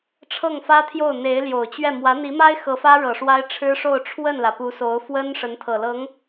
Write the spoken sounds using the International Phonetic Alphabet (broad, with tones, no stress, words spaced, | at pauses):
ʈ͡ʂʰɤ˥˩ŋfä˥t̪ʰjo˥˩ʊ̯ n̪e˧˥ɪ̯ljo˨˩ʊ̯t͡ɕɥɛ˥˩ mwä˧˥n̪i˧˥ma˥ɪ̯ xɤ˧˥fä˥ ɻɤ˨˩ ʂwa˥ɪ̯ʈ͡ʂʰɻ̩˥ʂo˥˧ʊ̯ ʈ͡ʂʰwə˥˩nlä˩ pu˧˥so˧˥ʊ̯fwə˥nʂə˧˥n t̪ʰɤ˨˩lɤ˧˥ŋ